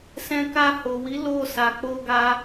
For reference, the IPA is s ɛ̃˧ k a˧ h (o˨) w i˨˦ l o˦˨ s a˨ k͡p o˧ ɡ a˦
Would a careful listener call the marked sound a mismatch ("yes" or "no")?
no